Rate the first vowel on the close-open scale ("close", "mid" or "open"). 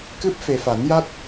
close